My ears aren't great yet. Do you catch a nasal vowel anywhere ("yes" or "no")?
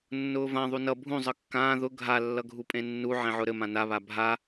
yes